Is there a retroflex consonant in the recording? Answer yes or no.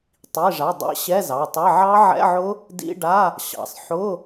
yes